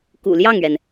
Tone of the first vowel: low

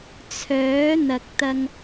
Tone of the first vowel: rising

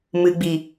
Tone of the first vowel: low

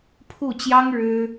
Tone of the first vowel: falling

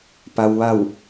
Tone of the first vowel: low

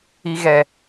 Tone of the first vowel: low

